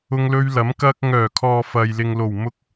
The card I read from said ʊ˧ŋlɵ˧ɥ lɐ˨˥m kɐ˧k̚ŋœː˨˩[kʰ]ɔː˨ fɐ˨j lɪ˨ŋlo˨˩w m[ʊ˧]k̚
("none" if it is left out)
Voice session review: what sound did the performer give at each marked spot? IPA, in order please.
kʰ, ʊ˧

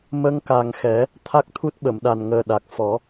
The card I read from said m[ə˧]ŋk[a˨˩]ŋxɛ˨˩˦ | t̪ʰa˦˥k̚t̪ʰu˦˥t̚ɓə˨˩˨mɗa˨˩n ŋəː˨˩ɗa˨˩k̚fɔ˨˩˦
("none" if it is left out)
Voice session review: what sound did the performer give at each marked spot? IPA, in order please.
ə˧, a˨˩

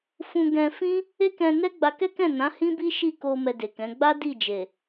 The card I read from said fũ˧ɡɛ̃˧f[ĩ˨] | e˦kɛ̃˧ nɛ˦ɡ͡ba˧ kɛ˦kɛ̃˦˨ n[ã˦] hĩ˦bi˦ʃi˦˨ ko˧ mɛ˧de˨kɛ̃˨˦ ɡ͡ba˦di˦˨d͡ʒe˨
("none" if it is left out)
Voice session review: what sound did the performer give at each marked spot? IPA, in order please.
ĩ˦, ã˨˦

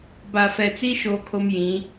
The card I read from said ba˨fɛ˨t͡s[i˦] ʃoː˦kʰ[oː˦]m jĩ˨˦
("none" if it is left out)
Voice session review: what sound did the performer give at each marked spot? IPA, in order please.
i˦, o˦

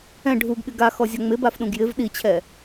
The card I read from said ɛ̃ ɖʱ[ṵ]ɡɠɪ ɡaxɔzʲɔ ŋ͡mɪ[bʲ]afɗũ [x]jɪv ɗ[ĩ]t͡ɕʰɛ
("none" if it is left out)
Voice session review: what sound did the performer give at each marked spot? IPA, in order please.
u, b, ɡ, i

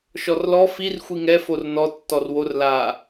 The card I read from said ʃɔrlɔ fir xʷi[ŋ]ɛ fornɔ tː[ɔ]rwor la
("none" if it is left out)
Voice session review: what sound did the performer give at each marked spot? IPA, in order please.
ŋ, ɔ

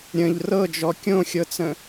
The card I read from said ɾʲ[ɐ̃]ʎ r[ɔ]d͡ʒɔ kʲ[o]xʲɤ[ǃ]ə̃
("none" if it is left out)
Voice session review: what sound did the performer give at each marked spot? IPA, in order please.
ə̃, ɤ, õ, t͡s

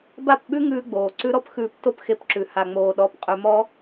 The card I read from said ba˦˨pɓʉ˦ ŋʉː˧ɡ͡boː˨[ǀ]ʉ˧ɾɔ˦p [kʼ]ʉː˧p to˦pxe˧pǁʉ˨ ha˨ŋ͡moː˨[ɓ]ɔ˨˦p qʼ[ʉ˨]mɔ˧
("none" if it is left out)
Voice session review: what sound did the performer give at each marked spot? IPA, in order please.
ǀ, x, ɗ, ʉ˨

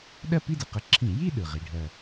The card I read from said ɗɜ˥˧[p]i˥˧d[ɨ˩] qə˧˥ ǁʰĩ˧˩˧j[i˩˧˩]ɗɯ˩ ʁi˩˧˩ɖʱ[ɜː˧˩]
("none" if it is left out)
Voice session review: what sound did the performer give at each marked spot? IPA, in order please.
p, ɨ˩, i˥˧, ɜ˧˩

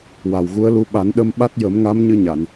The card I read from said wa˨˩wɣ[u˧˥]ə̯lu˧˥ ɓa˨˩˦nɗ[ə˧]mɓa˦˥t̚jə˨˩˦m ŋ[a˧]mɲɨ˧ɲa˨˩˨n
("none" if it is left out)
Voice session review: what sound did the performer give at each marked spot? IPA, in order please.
u˧˥, ə˧, a˧˥

